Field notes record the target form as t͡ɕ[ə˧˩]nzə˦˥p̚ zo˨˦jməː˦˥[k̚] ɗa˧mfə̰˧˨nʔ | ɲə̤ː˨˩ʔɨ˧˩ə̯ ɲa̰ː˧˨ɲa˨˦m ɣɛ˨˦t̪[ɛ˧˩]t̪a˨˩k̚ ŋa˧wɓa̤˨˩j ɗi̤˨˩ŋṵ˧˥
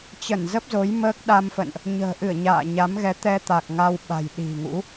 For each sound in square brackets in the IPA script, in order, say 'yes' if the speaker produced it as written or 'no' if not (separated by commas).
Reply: yes, yes, no